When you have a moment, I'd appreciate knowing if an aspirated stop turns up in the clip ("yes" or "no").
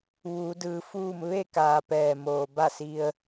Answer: no